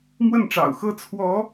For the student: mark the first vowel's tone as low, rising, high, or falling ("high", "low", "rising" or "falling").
falling